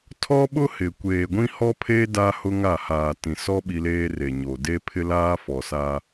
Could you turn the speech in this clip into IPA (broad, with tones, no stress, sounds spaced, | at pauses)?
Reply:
tʰ ɔ˦ ɓ ʊ˦ h ɪ˨ kʷ eː˨ ɡʷ ĩ˦ h ɔ˦ pʰ eː˦ d a˦ h ʊ˦ ŋ a˦˨ h aː˨ t ĩ˨ s ɔ˦ ɓ i˦ l eː˦ r e˨ ɲ o˨ d e˦ pʰ ɪ˦ l aː˦ f ɔ˨ s a˦